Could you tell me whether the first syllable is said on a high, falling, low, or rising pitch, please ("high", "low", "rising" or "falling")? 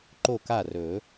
falling